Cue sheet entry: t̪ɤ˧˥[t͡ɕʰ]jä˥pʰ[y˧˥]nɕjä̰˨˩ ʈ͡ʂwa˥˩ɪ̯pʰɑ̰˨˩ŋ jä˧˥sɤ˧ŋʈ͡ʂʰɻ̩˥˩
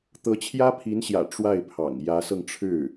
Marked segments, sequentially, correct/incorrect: correct, incorrect

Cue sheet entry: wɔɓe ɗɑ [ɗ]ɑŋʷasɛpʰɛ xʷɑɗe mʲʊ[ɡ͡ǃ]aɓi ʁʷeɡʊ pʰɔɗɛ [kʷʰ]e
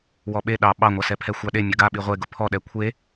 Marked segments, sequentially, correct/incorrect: incorrect, incorrect, correct

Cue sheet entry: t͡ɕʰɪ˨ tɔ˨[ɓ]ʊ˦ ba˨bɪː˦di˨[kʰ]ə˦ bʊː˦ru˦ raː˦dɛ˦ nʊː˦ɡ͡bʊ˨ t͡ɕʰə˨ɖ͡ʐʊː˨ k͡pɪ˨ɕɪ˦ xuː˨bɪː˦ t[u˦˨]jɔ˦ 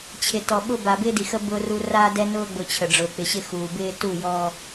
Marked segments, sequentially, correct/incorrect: correct, incorrect, correct

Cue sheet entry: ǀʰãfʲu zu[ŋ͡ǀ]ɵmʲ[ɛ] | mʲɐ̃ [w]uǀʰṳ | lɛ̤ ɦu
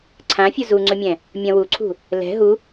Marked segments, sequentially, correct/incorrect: correct, incorrect, correct

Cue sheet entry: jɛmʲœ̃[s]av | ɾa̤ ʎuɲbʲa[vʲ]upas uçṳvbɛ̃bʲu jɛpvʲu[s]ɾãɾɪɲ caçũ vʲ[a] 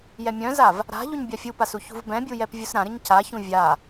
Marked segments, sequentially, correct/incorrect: incorrect, incorrect, correct, correct

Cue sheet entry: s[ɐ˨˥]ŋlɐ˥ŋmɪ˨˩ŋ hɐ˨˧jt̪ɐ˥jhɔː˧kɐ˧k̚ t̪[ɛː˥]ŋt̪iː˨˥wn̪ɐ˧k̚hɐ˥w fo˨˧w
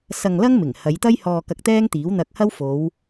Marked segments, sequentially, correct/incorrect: incorrect, correct

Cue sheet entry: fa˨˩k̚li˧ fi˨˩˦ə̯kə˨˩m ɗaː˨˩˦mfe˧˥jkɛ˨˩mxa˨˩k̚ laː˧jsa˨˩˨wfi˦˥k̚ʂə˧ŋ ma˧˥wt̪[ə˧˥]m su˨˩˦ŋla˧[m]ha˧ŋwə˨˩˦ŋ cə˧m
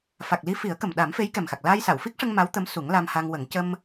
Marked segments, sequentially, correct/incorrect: correct, correct

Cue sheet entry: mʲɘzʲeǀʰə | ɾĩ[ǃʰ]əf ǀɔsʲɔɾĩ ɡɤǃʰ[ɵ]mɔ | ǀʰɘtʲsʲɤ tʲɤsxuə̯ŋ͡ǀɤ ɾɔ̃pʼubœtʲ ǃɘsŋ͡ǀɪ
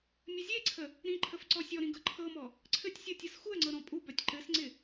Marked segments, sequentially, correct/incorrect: correct, incorrect

